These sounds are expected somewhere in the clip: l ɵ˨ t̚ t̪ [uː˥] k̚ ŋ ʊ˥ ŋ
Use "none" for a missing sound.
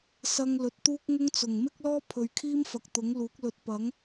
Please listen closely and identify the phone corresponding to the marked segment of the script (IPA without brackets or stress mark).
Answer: uː˥